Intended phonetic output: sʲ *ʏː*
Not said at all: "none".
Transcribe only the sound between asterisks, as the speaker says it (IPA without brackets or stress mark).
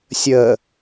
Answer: əː